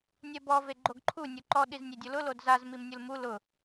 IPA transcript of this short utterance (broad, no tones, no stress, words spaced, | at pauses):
nʲɛbɔ veɡ͡ǃoɡǃʰu nʲuǃɔ ɗiznʲedʲʊlʊ lodzaz mimnʲulmu lʊ